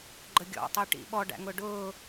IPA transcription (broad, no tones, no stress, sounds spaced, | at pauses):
ɡ͡ǃ ə ɡʲ ɔ̰ tˤ i ʈ ḭ ɓ ɔ ɖ æ̰ ŋ ʊ ɖ ʊː